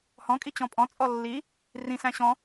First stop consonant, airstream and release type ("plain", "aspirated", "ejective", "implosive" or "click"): ejective